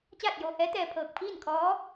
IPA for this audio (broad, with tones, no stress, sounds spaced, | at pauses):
t͡ɕ aː˥˨ t̚ j oː˧ h ɛː˧˥ t̪ ɛː˧ pʰ ɤː˧˩ k̚ pʰ iː˥˨ n kʰ ɔː˧˥